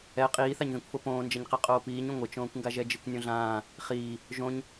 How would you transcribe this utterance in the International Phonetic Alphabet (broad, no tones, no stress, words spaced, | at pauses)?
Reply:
ɛ qʼiːθaɲðĩkʷfo põːnd͡ʒɐɲqe qʼoːpiːɲũ ŋʷɘt͡ʃõːkʷŋɡa ʒɛd͡ʒɨkʷnʲõɮãː | χiː | ʒõɲ